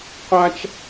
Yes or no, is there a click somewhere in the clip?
no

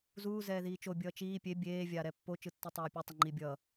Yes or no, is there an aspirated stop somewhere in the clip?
no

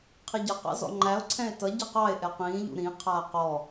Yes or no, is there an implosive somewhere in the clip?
no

